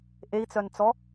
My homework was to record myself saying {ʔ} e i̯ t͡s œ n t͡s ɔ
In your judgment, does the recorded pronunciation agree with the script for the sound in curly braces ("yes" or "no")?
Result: yes